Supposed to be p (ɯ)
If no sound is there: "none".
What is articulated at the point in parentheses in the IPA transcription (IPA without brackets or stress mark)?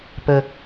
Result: ə